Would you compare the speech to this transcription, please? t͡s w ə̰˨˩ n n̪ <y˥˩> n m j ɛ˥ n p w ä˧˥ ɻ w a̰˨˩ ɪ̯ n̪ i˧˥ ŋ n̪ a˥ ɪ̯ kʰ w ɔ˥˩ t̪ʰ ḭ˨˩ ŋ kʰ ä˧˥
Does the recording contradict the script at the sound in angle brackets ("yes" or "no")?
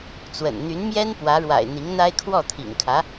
yes